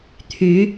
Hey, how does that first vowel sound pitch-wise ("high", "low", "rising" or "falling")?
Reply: rising